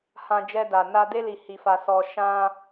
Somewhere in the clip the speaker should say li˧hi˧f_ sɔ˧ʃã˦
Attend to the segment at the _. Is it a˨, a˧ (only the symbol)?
a˧